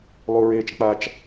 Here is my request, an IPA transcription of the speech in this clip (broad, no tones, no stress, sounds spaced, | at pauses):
lˠ u ɹ eː t͡ʃ k͡p a t͡ʃ